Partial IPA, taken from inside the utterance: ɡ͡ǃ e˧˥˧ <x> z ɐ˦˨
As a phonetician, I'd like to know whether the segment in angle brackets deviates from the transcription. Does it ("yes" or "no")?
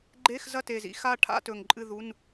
no